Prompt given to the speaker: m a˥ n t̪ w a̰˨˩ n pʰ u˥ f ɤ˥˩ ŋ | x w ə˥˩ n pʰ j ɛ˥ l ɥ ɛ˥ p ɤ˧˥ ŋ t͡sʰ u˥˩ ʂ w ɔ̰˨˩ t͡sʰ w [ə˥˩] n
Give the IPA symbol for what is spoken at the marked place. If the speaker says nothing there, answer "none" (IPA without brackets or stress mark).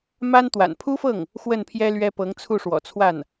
a˥˩